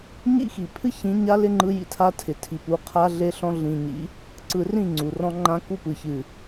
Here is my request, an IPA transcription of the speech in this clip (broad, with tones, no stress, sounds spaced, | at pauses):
ɲ ḭ˦ x i˨ pʰ ɨ˦ ç ĩ˨˦ ɲ a˦ l ɪ˦ ŋ͡ǃ ɯ˦ j ḭ˦ tʰ a˦ tʰ ɪ˨ tʰ i˨ p u˨˦ qʰ a˦ ɮ e˦ ɬ ɔ̃˦ ɮ ĩ˨ ɲ ḭ˨˦ | ǀ ɯ˨ r ĩ˦˨ ŋ͡ǀ u˨ r ɔ̃˦ ŋ͡ǃ ã˦ k u˦ p ɯ˨ ç ɨ˨